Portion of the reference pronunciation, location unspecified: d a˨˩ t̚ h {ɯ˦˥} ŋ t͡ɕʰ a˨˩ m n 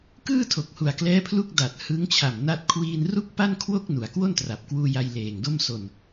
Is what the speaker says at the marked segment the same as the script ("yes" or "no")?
yes